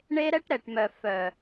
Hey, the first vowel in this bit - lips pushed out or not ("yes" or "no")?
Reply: no